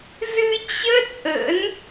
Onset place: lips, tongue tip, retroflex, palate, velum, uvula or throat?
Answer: tongue tip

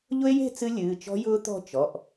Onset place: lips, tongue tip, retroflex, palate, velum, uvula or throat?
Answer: palate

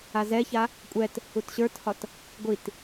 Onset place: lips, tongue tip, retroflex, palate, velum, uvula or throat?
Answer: tongue tip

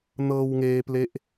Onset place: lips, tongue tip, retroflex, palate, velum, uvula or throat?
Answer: tongue tip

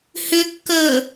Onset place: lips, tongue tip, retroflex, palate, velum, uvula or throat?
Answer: throat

